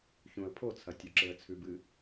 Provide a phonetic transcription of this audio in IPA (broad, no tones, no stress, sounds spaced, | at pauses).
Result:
ç ũ ə̯ pʰ o t͡sʰ ɐ tʲ ʉ ǁ e ə̯ t͡sʰ ʉ b ɨ